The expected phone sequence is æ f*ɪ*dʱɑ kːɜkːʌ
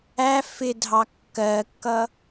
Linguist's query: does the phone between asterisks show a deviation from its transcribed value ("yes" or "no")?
no